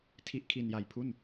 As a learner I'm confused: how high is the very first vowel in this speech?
high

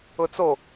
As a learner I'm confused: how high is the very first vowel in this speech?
high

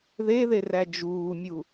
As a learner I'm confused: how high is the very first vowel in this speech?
mid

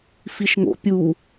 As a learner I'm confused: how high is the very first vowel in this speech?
high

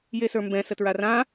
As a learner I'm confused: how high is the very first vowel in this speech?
mid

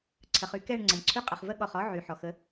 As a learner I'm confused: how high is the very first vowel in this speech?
mid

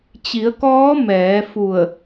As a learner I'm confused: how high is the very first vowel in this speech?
high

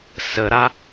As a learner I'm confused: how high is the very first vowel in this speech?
mid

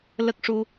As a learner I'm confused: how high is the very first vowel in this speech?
mid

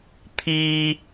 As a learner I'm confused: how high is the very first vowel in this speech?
high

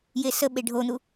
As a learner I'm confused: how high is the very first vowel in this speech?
mid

